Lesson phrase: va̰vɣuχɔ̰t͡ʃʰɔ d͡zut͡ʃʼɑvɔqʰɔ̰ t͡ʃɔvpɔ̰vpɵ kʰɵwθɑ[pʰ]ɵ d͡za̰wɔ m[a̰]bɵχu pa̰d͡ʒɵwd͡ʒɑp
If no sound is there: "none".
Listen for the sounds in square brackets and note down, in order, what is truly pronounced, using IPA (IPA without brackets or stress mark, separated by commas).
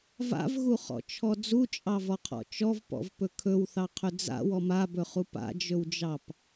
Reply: qʰ, a